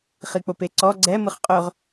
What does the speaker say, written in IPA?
χ i k͡p o p e ǀ ɔ ɡ͡ǀ ɛ m ɯ χ qʼ ɵ ʁ

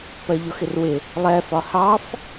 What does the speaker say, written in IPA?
p ɜ ʎ ʊ x ɪ r w ɪ | lˠ ɛ f ɒ h ɑ f

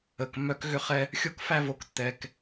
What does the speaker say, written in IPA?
ə˨ k mː œ˦ k ɣ ʏ˦ χ ɛ˦ | xʲ o˦ k f æ˦ v o˨ k tː ɛ˨ k

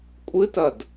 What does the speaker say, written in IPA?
kʷʼ ɨ t ɐ d

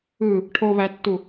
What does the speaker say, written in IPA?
ɯ | ʈʰ o β æ tː u

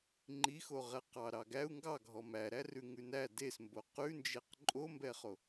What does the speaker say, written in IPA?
ŋ͡ǃ i x o ʁ ɛ q ɑ ɾ ɑ ɡ æ u̯ ŋ ɡ ɑ ɡʱ ɔ m æ ɾ æ r ʉ ŋ ʉ n æ d e s m b o q ʉ n d͡ʒ e q ǃʼ o m b ɛ χ o

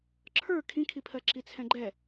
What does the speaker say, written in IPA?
ǁʰ ə˞ kʰ ĩ kʰ i pʰ ɜ ǁ i t͡sʰ ɛ̃ ɡ͡ǃ ɛ

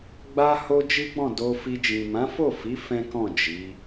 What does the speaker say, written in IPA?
ɡ͡b a˦ h o˦ d͡ʒ i˦ ɡ͡b ɔ̃˦˨ d o˧ f i˧ d͡ʒ ĩ˨ m ã˨˦ f o˦˨ f i˨˦ f ɛ̃˦ k ɔ̃˦˨ d͡ʒ i˨˦

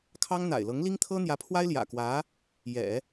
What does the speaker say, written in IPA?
kʰ ɑ˥ ŋ n̪ a̰˨˩ ɪ̯ l ɤ˧˥ ŋ l i˥ ŋ t̪ʰ ɤ˥ n̪ j ä˧˥ pʰ w a˥ ɪ̯ l j ä̰˨˩ k w ä˧˥ | j ɛ̰˨˩˦

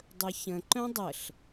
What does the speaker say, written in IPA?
dˤ ɵ ç ə̃ ǃ œ̃ dˤ ə ɬ

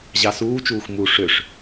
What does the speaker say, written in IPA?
ʑ ɑ s uː t͡ʃ uː x m u ʂ ø ʂ

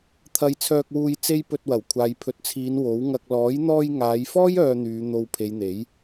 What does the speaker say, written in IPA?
t̪ʰ ɐ˧ j t͡sʰ œː˧ k̚ w uː˧ j t͡s e˥ j p ɵ˧ t̚ w ɐ˨˩ w kʷʰ aː˨ j pʰ ɵ˨ t̚ t͡sʰ iː˨˧ n w o˨˥ w ŋ ɐ˧ k̚ l ɔː˨˥ j n̪ ɔː˧ j ŋ aː˨˧ j f ɔː˥ j œː˧ n̪ yː˨˧ n̪ o˨ w pʰ e˨˧ j n̪ e˨˥ j

